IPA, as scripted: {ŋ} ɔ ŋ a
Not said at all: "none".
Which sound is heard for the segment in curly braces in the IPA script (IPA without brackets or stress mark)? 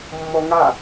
mː